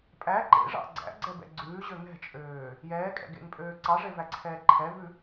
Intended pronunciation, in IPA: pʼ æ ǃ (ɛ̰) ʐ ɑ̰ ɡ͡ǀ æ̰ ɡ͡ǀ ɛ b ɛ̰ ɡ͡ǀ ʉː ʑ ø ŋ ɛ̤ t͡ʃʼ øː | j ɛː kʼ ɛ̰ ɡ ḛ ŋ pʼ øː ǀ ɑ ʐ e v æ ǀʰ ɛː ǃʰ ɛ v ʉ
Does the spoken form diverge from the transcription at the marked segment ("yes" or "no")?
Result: yes